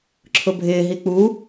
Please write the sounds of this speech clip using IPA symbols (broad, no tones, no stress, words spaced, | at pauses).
ǁʰʊbʱɪːɦi k͡pu